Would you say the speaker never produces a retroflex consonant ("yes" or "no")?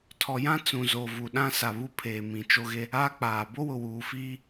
yes